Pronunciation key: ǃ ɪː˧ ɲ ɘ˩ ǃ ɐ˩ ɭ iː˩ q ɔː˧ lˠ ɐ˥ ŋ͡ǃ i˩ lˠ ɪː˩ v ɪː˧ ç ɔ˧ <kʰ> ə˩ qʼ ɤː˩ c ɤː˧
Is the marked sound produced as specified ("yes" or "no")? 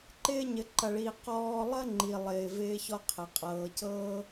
no